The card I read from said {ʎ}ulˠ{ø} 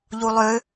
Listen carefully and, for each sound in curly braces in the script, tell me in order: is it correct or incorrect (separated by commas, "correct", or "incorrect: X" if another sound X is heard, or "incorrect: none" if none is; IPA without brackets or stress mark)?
correct, correct